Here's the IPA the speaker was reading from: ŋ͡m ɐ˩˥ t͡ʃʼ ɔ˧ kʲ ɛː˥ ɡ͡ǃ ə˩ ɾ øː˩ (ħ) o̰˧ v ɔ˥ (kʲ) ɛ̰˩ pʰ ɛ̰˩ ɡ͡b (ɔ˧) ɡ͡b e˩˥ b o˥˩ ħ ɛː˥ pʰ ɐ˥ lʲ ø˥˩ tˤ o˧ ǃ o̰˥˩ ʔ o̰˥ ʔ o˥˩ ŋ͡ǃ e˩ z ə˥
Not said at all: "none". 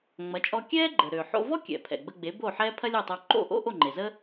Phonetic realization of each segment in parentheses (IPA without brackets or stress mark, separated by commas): ħ, kʲ, ə˧